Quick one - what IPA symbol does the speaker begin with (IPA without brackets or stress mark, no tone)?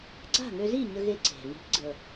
ɡ͡ǀ